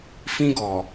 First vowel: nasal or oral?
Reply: nasal